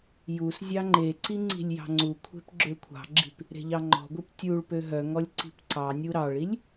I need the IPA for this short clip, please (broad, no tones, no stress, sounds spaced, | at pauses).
j u s zʲ ɑ ŋ͡ǃ e ǀ i ŋ͡ǀ i̤ lʲ j ɑ̤ ŋ͡ǀ u kʷʰ e̤ p ɡ͡ǁ ø kʷʰ ɑ̤ ɡ͡ǁ i̤ p | ɾ e̤ ʎ ɑ ŋ͡ǃ ɔ̤ ɡʷ i p tʲ u ɭ p ø ɦ œ ŋ ɔ lʲ ǀ i̤ p ǀ ɑ nʲ u ɾ ɑ ɭ i lʲ